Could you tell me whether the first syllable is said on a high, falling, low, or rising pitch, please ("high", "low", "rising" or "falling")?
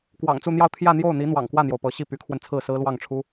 low